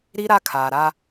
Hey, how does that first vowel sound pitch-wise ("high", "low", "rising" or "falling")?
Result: high